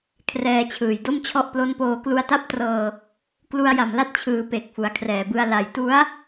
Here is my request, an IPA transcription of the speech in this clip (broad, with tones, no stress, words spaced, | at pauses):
kʰrɛː˧t͡ɕʰɯː˨˩jdo˥˩mt͡ɕʰɔ˥˩ʔ plo˦˥npoː˧ klu˧a̯ta˥˩p̚trɤː˧ | klu˧a̯ja˨˩mla˦˥t̚t͡ɕʰɯː˩˦ pe˨˩k̚fu˩˦a̯kʰrɛː˨˩bɯ˧a̯ la˨˩jtu˦˥a̯